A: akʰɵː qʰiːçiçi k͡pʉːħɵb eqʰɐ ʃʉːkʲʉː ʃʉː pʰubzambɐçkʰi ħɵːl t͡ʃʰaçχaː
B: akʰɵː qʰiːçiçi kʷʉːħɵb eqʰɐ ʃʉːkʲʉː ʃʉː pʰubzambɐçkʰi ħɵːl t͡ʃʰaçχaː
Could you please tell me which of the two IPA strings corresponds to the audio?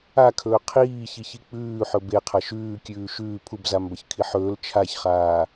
A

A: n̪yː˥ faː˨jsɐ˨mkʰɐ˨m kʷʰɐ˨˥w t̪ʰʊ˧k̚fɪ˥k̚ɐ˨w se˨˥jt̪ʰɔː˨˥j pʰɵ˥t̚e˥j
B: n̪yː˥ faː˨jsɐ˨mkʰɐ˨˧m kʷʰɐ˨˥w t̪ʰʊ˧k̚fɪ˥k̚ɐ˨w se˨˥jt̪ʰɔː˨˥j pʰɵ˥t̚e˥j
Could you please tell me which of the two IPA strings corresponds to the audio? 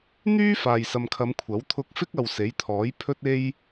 B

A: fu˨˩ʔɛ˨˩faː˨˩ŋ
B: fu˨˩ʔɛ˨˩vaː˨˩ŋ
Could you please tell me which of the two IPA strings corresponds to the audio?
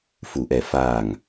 A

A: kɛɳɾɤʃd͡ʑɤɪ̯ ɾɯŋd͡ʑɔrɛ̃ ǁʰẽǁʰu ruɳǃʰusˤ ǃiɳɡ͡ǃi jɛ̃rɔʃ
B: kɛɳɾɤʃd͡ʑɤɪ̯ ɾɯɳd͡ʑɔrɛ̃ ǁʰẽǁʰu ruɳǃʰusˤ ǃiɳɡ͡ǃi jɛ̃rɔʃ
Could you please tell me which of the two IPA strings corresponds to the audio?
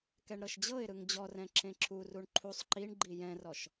A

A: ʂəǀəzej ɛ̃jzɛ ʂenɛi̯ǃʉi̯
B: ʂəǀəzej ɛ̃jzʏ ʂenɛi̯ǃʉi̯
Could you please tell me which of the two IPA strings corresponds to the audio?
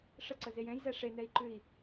A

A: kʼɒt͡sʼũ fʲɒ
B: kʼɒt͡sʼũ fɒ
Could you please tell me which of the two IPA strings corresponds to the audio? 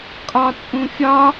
A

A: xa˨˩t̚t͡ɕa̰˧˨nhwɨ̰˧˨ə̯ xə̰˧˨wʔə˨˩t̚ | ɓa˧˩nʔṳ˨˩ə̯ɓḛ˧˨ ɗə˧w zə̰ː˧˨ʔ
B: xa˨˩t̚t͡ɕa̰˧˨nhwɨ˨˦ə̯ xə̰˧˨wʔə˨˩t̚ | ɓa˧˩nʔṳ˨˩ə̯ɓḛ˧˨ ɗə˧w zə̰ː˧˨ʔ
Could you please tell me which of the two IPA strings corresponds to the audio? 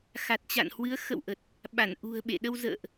B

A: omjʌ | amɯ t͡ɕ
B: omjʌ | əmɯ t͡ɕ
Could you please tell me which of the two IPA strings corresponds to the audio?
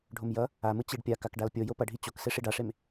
A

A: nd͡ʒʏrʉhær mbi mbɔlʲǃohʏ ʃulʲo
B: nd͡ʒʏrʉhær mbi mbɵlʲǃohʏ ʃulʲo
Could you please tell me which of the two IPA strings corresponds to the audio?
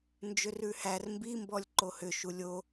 A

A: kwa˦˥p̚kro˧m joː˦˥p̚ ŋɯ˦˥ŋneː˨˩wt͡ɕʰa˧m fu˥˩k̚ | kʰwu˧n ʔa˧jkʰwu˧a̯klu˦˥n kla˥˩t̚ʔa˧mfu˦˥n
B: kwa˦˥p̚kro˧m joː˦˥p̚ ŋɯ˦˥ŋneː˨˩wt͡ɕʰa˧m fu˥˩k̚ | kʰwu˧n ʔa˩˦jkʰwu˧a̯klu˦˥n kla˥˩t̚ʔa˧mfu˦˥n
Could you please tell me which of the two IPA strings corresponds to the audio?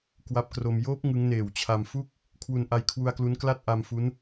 A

